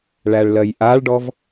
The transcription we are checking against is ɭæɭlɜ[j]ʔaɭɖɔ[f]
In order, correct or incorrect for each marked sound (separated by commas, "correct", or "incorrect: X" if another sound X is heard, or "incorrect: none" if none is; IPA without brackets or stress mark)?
correct, incorrect: v